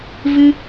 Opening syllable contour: high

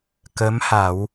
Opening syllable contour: rising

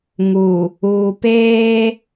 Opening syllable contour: low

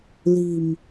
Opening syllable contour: low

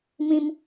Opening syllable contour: high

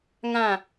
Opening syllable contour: falling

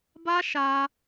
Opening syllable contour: high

